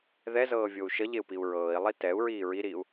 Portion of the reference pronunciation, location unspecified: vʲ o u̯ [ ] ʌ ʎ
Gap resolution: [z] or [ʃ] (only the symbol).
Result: ʃ